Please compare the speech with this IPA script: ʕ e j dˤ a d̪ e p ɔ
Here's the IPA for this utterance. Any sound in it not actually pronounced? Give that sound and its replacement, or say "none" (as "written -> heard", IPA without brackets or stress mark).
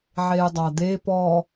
none